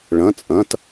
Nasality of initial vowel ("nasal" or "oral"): nasal